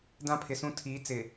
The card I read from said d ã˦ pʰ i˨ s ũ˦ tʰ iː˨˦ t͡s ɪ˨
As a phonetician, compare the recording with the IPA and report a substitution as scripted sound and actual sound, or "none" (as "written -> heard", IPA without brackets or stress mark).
i˨ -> ɪ˨